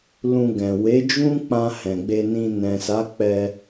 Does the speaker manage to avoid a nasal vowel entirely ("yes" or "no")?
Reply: no